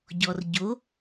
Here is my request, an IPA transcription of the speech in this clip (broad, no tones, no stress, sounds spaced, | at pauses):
ɟ ɔ r ɟ o